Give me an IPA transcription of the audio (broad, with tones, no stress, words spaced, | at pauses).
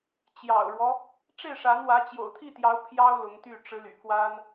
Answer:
t͡ɕjɑ̰˨˩ʊ̯ɻwɔ˦ | ʈ͡ʂe˥˩ɪ̯ʂa˧˥nwä˧˥ t͡ɕjo̰˨˩ʊ̯t̪ʰi˥˩t̪jɑ˧˥ʊ̯ pʰjɑ˥ʊ̯ lʊ˧˥ŋt̪y˥˩ ʈ͡ʂɻ̩˧˥ ly̰˨˩kwa˥n